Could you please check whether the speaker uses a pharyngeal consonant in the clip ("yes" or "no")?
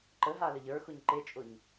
no